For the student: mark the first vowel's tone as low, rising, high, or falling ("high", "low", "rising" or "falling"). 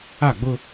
falling